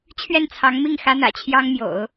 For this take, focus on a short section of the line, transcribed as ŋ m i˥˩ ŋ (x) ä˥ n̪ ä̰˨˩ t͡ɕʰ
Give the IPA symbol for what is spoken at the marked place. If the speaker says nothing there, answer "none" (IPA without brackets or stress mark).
x